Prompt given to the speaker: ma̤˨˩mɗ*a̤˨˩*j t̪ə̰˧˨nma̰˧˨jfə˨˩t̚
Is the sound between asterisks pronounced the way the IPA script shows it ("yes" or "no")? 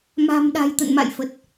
yes